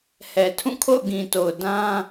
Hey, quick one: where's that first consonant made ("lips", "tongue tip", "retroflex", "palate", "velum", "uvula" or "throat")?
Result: throat